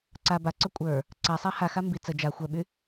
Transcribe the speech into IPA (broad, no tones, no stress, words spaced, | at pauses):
ǀa baǀœ kʷʼə˞ | ǀasˤa haxa mbi t͡sə d͡ʒa xʷœɓy